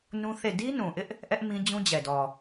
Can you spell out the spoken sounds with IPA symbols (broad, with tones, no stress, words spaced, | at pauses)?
nũ˦θe˦˨ di˦nũ˨ʔɪ˦ʔ | ʔɛ˦ʔ mĩ˦d͡ʑũ˦d͡ʑɛ˨dɔ˨